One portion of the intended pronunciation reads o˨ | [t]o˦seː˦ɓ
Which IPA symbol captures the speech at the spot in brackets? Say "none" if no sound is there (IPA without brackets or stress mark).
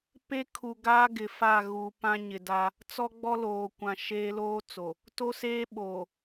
t